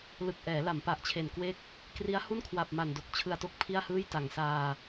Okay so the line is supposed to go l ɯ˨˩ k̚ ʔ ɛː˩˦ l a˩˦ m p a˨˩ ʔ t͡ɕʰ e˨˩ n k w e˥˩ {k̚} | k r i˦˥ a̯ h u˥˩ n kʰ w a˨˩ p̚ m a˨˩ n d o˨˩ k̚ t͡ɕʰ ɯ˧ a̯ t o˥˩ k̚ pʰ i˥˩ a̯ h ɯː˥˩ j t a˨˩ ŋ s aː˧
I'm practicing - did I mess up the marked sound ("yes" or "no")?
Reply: no